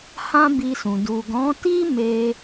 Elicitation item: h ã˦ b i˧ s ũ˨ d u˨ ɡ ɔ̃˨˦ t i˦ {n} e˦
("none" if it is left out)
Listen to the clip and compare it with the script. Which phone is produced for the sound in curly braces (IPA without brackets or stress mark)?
m